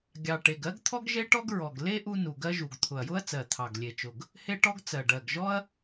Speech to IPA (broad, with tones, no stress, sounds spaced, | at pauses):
ɡʲ ɑ˨˩ ʈ e˨˩ ɡ ɜ˥ ɡ t̪ʰ ɔ˥ ɡ ʒ e˥ ʈ ɔ˥ ɡ ɹ ɔ˨˩ ɡ l e˥ ʔ u˥ n u˨˩ ɡ ɜ˥ ʒ u˨˩ ɡ t̪ʰ ʊ˨˩ ɐ̯ j ʊ˥ ɐ̯ t͡s ɜ˨˩ t̪ʰ ɑ˨˩ ɡ lʲ e˨˩ t͡ʃ ʊ˨˩ ɡ | h e˥ ʈ ɔ˥ ɡ t͡s ɜ˨˩ ɖ ɜ˨˩ ɡ ʒ ɔ˥ ɐ̯